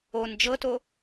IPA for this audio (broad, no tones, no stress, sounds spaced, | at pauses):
o n d͡ʒ ɤ t o